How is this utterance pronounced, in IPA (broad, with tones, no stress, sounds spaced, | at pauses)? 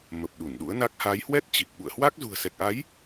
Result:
m ə˨˩ p̚ ɗ u˧˩ n ɗ ṵ˧˥ ə̯ n a˦˥ k̚ h a˨˦ j h w ɛ˦˥ t̚ t͡ɕ i˨˩ k̚ ɓ ṵ˧˨ ə̯ h w a˦˥ k̚ z ṳ˨˩ ə̯ s ɛ˨˩ k̚ ʔ a˨˦ j